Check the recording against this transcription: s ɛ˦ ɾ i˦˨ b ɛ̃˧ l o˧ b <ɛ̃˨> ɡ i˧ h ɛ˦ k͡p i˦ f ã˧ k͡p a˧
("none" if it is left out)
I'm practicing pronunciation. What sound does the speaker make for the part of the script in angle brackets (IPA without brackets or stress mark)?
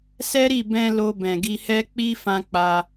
ɛ̃˨